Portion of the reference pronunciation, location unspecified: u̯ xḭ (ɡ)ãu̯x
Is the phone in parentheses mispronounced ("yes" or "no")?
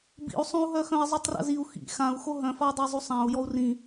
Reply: yes